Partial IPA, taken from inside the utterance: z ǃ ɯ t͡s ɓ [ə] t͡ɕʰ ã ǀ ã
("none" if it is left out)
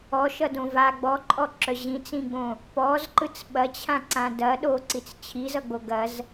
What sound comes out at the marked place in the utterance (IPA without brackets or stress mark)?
ɐ